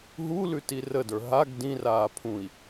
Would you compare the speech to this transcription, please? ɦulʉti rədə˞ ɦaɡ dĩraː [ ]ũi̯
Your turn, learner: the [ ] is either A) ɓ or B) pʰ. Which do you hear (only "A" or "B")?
B